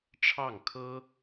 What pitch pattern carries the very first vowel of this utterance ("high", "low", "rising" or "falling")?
falling